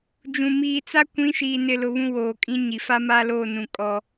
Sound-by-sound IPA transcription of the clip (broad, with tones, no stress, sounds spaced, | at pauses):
d͡ʒ ũ˨ m iː˨ t͡s a˦ kʷ ĩ˨˦ ʃ iː˨ n ɪ˨ l ʊ˨ β ũ˦ w oː˨ kʼ ĩ˦ ɲ i˨ f a˦ m aː˦ l oː˦˨ n ũ˨ kʼ ɔ˦